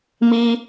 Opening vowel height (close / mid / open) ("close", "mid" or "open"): close